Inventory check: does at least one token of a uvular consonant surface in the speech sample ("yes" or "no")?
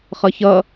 yes